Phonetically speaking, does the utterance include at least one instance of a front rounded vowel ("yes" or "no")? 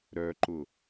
yes